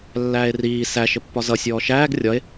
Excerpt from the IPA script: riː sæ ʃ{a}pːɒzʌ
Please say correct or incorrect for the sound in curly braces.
incorrect